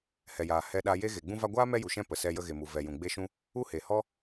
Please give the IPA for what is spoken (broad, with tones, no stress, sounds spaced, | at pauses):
h ɛ˨ j aː˨ h ɛ˧ ɗ a˧ j e˦ ɣ e˨ ɡ͡b ũ˧ v a˧ ɡʷ aː˦ m ɛ˦ j u˨ ʃ ɛ̃˦ p ə˨ s ɛ˧ j ə˧ ɣ e˨ m u˨ v ɛ˨ j ũ˨ ɡ͡b e˦ ʃ ũ˦ | u˦ h e˨ h ɔ˦